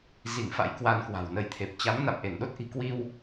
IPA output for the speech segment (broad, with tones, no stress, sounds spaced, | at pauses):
z i˧˩ ŋ f a̰˧˥ j k w a˧ n k w a̤˨˩ w n ə˧ j t̪ʰ e˨˩ p̚ t͡ɕ a˨˦ m n a̰˧˨ m ʔ e˧˩ n ɗ o˦˥ t̚ ʔ i̤˨˩ k w i˧ w